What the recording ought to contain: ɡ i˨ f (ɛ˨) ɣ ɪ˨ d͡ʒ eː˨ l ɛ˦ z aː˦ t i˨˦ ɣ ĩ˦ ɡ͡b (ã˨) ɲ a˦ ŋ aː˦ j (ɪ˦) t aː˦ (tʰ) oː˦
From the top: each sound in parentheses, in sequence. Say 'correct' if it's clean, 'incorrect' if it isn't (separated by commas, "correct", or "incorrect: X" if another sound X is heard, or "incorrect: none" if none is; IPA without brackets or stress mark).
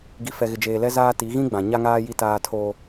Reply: correct, correct, incorrect: i˦, correct